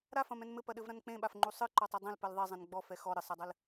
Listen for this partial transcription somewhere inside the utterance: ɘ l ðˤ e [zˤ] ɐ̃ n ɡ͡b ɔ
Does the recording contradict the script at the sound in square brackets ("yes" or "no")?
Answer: no